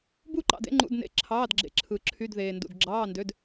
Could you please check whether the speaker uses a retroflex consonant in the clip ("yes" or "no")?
no